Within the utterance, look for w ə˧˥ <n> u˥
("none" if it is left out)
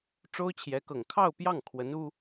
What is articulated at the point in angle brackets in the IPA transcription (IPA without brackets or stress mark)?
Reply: n